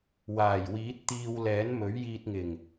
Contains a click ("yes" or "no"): no